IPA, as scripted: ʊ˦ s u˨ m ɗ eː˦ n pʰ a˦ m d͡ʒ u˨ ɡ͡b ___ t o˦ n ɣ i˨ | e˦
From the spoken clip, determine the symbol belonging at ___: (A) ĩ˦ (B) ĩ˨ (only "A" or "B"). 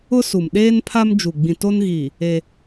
B